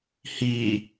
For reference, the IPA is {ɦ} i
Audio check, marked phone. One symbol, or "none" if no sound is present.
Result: h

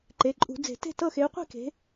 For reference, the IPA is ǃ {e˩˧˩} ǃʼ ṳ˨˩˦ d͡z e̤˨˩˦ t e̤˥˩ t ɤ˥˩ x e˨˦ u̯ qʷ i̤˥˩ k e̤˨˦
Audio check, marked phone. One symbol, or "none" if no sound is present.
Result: e˩˧˩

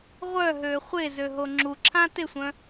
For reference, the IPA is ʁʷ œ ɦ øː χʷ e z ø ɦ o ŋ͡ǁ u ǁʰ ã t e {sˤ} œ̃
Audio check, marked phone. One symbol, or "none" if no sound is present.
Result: sʷ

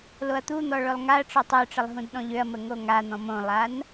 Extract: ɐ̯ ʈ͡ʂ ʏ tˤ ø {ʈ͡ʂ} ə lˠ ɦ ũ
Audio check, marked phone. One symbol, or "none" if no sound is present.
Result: ʈ͡ʂ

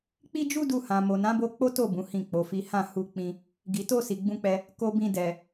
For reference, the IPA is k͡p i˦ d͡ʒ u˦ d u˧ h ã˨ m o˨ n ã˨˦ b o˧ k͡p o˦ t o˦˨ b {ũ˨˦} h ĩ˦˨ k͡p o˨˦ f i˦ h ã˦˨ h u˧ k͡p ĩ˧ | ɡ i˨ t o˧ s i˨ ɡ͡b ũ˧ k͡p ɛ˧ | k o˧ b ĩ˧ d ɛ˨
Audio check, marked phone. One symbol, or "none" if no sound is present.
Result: ũ˨˦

